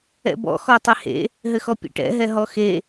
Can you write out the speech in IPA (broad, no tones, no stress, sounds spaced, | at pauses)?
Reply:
ɛ̰ b ɔ̰ x ɔ tˤ ɛ h ḛ | ɦ ɘ x ɔ pʲ ḛ ʈ ɛ̰ ɦ ɛ ɦ ɔ x e